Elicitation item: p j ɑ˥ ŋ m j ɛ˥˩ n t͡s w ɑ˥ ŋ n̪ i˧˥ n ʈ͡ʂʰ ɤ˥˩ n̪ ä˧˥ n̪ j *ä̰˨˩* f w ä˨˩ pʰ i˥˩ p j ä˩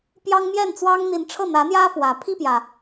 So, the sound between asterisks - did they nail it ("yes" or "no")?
no